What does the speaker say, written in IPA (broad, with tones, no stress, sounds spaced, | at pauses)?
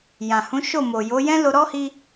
j ã˨ h ũ˨˦ ʃ o˦˨ m o˨ j o˨˦ j ɛ̃˦ l o˧ ɾ ɔ˦ h i˧